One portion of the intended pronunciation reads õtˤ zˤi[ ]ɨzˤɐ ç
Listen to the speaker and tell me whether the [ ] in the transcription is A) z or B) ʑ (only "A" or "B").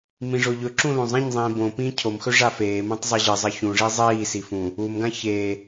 B